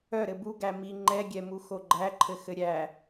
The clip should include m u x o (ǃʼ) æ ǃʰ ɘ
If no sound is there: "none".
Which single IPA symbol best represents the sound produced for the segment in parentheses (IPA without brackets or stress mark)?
ɡ͡ǃ